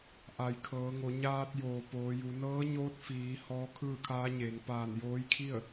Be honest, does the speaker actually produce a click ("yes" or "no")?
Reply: no